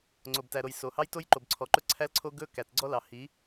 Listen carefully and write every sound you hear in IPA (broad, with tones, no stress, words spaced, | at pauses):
ŋ͡ǀo˨b tæ˨ɾo˨j so˨hɑ˦jto˦j ǃo˨bǀʰɔ˨ǃɵ˦ ǀʰæ˦lǀʰo˦ ɡɵ˦ kæ˨tɡ͡ǀɔ˦ lɑ˨ hi˨˦